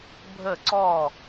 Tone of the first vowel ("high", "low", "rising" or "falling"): falling